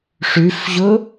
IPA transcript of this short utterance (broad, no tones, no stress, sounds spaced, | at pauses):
ʂ ʉ f ʑ ʊ